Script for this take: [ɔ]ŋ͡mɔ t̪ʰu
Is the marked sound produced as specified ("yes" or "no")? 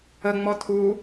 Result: no